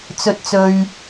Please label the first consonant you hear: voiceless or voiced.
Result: voiceless